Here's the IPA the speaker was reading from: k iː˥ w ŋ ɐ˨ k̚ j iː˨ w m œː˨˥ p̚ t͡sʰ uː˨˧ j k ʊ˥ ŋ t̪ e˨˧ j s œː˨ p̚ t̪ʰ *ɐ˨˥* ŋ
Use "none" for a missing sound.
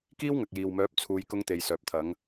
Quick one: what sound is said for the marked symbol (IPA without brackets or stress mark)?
ɐ˨˥